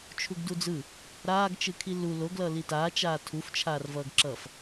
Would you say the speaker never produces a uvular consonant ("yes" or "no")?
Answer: yes